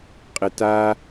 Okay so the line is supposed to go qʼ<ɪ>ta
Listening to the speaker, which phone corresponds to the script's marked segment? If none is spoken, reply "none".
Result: ɪ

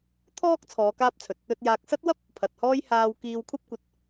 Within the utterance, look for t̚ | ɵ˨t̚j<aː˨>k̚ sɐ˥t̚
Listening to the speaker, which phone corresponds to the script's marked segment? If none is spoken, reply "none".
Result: aː˨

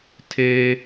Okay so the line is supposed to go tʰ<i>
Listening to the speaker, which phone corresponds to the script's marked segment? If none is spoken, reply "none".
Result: e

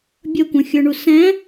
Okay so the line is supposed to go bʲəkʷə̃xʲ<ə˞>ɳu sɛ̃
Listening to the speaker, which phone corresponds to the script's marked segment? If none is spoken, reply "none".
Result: ə˞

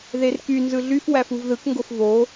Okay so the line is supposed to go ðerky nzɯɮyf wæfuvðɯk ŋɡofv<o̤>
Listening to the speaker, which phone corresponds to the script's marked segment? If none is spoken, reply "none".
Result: o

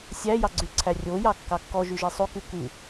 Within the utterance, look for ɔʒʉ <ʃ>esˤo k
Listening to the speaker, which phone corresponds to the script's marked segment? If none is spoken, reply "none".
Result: ʒ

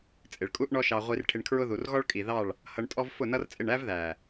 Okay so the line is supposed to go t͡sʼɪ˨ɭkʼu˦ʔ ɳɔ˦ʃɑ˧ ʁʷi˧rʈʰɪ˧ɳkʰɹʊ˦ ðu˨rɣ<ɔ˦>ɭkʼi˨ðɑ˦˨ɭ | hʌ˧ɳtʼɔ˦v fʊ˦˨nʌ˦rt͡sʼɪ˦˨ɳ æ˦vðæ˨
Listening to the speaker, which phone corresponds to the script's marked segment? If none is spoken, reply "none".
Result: ɔ˦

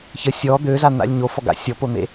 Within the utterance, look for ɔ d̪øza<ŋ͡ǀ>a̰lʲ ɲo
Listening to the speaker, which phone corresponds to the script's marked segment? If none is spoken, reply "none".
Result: n̪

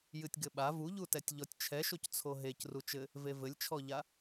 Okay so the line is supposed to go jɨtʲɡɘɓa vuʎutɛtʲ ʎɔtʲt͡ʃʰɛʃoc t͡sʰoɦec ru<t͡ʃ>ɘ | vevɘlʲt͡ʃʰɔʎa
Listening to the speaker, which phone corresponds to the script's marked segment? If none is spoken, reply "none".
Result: t͡ʃ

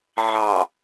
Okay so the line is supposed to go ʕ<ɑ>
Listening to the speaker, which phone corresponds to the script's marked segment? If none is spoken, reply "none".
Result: ɑ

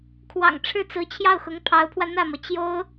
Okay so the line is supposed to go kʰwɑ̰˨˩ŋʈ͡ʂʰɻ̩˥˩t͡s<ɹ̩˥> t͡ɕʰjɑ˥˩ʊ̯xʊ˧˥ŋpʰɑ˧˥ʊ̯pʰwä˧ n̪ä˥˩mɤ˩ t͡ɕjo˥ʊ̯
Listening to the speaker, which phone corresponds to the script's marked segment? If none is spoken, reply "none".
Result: ɹ̩˧˥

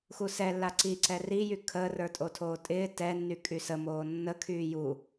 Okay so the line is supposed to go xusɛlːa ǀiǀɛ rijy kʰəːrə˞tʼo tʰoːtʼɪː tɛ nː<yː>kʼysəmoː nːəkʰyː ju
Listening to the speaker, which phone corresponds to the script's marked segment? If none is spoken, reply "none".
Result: y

